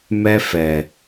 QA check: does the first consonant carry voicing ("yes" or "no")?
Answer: yes